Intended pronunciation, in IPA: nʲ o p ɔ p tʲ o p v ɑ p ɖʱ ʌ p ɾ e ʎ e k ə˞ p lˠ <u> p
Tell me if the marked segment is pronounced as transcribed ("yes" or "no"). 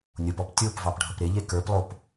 no